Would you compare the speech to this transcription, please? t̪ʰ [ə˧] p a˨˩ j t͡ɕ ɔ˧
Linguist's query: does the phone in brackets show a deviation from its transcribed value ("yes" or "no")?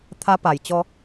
yes